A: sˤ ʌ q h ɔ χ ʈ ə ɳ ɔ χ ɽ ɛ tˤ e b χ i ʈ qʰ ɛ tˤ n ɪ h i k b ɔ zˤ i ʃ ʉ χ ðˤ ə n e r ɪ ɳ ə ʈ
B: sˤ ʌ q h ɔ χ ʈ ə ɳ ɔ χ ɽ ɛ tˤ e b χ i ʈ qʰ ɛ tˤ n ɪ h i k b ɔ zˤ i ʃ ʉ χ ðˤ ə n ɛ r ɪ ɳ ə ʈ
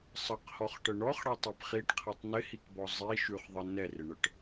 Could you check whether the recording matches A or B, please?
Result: B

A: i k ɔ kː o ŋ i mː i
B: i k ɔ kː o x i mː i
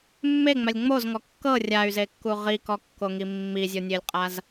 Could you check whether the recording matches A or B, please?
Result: A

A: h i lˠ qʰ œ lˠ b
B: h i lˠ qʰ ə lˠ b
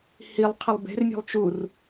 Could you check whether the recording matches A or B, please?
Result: B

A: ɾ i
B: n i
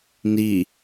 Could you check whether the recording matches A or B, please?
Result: B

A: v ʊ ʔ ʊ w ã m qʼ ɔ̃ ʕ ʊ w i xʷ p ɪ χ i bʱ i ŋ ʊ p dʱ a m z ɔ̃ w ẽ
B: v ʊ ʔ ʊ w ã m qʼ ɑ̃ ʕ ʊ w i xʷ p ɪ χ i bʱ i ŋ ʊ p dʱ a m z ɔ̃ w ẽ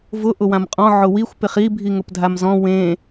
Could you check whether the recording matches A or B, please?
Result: A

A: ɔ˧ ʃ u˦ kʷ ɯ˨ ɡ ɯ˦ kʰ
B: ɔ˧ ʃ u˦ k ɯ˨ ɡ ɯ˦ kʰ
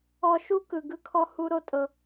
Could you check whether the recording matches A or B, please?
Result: B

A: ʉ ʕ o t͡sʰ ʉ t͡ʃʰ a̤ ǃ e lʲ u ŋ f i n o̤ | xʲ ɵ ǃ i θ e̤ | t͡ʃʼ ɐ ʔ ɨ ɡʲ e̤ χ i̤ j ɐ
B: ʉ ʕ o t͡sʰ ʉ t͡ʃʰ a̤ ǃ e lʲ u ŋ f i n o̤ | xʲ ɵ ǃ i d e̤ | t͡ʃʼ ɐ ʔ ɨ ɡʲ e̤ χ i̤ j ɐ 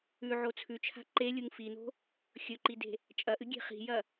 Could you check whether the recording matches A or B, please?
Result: B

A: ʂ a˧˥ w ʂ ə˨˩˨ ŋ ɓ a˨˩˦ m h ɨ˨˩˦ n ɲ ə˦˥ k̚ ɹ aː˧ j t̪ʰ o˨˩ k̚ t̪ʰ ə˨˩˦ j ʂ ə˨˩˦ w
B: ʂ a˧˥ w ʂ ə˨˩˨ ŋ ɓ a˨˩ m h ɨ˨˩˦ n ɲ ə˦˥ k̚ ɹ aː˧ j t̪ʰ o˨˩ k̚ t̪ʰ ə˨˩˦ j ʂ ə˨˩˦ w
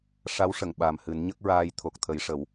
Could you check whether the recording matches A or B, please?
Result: B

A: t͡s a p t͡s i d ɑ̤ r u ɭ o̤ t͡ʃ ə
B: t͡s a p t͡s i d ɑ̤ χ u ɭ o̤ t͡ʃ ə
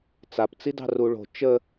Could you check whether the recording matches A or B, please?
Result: A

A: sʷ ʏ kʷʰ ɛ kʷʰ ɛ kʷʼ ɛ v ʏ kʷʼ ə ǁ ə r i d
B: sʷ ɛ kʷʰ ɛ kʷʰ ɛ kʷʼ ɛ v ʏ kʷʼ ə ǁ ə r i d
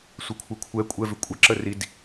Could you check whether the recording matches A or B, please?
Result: B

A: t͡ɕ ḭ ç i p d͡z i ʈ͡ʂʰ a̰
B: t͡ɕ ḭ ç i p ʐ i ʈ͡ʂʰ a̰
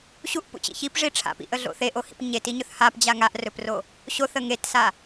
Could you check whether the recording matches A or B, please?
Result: B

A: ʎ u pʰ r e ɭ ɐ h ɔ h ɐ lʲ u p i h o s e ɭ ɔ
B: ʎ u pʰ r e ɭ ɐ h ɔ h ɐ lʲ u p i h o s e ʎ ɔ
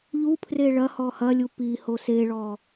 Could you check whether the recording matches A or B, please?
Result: A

